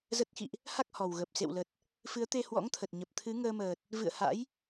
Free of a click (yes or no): yes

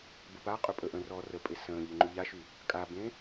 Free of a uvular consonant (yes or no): no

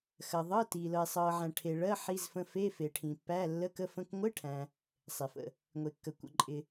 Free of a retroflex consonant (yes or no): no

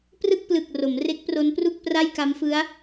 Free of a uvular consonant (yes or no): yes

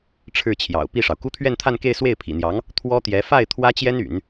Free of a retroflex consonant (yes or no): no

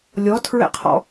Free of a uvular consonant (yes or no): no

